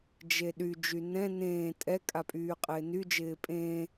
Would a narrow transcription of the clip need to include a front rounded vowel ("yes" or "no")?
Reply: yes